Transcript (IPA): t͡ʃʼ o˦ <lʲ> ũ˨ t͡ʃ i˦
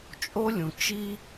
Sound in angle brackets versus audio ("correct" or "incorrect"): correct